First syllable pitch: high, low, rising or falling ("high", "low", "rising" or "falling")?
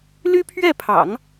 high